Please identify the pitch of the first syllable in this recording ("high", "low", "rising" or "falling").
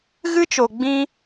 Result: high